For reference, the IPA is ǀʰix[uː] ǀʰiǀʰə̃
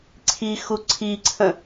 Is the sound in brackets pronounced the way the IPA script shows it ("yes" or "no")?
no